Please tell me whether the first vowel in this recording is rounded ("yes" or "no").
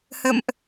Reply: no